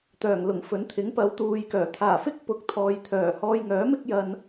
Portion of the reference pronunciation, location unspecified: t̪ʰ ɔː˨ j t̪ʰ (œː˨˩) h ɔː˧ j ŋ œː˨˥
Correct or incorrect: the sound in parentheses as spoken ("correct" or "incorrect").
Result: correct